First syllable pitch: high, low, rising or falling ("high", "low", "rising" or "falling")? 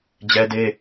high